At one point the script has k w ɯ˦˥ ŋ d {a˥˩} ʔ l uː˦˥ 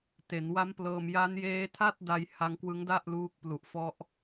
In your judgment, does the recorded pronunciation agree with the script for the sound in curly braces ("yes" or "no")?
yes